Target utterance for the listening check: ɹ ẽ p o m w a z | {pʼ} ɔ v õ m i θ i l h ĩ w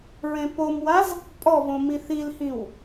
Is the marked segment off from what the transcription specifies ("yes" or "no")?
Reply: no